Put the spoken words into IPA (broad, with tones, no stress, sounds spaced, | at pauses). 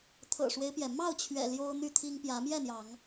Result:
t̪ʰ ɤ̰˨˩ ʂ w e˦ ɪ̯ p j ɛ˩ m ɑ˥˨ ʊ̯ t͡ɕʰ ɥ ɛ̰˨˩ l j o˦ ʊ̯ n̪ y˥˨ t̪ʰ i˦ ŋ p j ä˨˦ m j ɛ˥˨ n̪ j ɑ˨˦ ŋ